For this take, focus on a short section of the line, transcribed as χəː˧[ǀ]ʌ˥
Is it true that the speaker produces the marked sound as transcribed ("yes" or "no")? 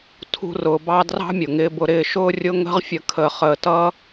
no